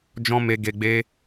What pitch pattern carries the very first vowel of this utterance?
high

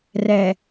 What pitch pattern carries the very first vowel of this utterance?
low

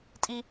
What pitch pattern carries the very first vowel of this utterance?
high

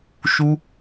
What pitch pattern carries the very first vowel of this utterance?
high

